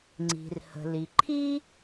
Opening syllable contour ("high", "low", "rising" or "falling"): low